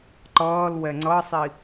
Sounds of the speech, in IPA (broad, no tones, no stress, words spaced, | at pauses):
ǃʌːlwɛ ŋ͡ǀʌsˤi